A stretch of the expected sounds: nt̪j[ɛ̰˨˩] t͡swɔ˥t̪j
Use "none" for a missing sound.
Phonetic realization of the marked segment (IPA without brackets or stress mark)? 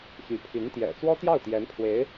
ɛ̰˨˩